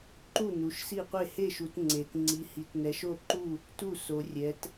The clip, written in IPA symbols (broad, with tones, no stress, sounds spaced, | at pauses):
ǃ u˥˩ n u˩˧ ʃ s i˥˩ qʷ e˥˩ h e˥˩ ʃ u˩˧ t ŋ͡ǀ e˩˧ t ŋ͡ǀ i˩˧ h i˩˧ t n ɛ˩˧ ʃ o˥˩ ǃ u˥˩ | t u˥˩ s o˩˧ rʲ ɛ˩˧ t